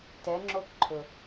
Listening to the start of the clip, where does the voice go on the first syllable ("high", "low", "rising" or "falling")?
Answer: rising